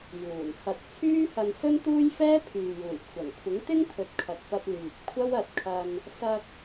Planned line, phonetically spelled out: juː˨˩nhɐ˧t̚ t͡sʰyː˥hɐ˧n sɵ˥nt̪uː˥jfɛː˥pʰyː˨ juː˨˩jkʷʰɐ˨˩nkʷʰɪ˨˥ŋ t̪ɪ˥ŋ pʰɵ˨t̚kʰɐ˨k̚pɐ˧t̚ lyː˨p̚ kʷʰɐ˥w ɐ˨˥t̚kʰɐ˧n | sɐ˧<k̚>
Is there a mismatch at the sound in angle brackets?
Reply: no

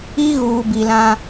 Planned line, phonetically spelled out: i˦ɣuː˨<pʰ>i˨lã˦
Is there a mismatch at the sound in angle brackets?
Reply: yes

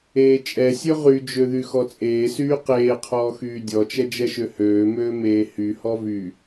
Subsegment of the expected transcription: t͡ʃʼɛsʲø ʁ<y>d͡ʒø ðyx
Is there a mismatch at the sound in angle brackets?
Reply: no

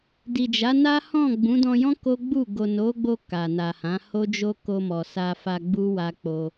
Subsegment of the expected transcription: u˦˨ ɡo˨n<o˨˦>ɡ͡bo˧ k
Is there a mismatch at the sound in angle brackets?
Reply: no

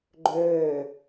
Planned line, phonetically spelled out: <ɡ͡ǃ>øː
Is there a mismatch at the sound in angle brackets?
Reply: no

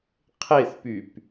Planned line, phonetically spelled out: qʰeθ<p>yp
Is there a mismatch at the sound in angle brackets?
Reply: no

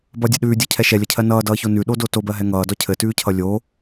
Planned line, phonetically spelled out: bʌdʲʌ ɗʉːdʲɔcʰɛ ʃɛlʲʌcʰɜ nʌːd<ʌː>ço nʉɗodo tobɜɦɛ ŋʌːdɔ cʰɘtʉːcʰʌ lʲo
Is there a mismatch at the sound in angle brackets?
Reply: no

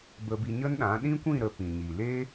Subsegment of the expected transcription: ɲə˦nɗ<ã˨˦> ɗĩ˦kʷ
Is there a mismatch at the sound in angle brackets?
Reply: no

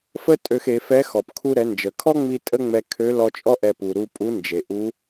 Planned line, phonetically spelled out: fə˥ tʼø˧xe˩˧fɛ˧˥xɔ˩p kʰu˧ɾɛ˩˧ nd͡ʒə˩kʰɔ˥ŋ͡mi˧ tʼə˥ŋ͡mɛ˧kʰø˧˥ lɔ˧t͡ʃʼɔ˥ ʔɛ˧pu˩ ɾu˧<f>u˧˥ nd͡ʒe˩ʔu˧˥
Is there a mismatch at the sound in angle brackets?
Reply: yes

